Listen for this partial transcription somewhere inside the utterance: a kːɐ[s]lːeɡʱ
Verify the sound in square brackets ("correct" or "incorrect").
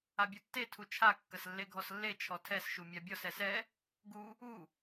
correct